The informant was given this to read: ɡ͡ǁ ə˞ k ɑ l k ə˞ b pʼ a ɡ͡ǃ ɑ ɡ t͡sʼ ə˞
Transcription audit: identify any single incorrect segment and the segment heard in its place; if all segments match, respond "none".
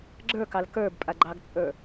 none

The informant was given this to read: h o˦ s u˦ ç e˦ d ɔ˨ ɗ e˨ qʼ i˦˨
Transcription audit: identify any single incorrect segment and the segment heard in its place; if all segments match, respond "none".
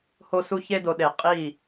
ɔ˨ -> o˨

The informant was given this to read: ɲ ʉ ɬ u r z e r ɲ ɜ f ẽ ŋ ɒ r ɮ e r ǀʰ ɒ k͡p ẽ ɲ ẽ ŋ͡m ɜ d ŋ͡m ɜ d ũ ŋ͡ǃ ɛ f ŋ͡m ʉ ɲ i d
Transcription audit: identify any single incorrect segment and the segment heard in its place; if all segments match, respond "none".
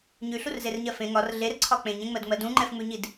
none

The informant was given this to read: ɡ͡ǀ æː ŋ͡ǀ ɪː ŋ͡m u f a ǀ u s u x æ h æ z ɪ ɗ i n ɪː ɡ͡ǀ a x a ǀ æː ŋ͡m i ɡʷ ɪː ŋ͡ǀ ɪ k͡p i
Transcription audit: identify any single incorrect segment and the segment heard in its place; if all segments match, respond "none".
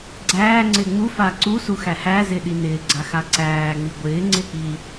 none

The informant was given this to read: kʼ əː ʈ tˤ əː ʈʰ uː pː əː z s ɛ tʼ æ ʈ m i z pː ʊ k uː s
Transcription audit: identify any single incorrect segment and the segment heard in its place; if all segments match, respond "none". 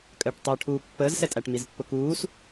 none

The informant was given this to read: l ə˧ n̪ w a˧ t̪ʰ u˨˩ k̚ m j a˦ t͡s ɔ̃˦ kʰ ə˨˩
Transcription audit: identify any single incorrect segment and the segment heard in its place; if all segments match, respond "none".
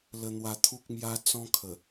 u˨˩ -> u˦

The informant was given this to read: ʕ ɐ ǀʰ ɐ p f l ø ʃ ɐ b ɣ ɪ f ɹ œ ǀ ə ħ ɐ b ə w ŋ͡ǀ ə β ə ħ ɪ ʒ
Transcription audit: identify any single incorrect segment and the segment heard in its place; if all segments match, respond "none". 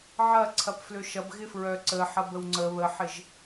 none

